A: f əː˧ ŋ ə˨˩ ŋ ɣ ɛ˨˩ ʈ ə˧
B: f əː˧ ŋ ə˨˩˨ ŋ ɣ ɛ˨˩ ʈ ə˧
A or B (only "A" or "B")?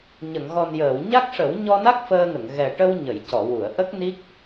B